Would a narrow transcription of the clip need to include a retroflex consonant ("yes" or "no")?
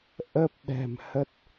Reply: no